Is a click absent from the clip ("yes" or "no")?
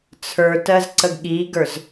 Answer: no